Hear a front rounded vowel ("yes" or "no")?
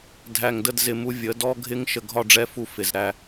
no